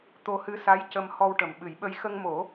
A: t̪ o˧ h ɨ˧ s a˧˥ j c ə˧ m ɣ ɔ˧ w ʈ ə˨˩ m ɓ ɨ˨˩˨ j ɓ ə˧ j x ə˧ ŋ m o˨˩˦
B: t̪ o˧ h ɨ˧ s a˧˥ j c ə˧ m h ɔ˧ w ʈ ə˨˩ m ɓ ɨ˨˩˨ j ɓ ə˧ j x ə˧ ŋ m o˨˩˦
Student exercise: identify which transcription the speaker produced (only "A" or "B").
B